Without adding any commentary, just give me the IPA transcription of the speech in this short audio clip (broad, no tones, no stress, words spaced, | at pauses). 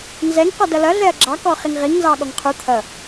nzɛŋ qɔdʌlʌ ɮɛɐ̯ɡ͡ǁɑ kɔχiŋʁiŋ nzɑɠɔŋqʰu t̪ʰʌ